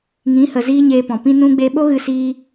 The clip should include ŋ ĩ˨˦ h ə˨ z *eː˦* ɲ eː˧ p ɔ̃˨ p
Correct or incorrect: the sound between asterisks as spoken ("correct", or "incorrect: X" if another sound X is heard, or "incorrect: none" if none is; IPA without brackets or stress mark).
incorrect: iː˦